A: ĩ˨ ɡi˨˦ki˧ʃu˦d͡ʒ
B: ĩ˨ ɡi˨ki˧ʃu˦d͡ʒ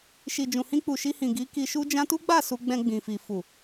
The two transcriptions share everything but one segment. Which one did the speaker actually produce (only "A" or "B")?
A